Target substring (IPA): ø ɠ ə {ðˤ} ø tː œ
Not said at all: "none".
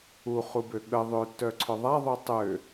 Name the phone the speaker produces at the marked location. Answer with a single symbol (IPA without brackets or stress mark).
ðˤ